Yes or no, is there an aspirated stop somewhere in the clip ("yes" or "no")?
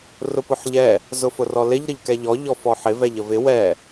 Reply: no